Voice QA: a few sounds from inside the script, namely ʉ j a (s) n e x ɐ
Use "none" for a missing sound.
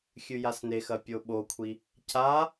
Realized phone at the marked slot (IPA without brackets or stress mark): s